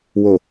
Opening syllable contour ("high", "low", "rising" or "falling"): low